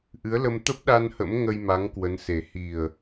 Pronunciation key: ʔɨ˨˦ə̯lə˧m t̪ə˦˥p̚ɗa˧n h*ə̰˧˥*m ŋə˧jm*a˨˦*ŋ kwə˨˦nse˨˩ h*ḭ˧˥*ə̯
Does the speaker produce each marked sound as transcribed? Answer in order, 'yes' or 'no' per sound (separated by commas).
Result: yes, yes, no